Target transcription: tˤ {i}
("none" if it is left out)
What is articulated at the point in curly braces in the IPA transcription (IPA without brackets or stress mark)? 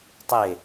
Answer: e